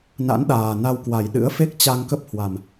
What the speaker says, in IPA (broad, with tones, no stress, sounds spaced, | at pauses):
n a̰˧˥ n ɗ aː˨˩ n a˧ w k w a˨˩ j ɗ ɨ̰˧˥ ə̯ f e˦˥ k̚ t͡ɕ a˧ ŋ k ə˦˥ p̚ h w a˨˩ m